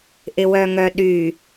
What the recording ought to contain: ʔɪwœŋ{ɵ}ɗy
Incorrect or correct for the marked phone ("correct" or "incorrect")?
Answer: incorrect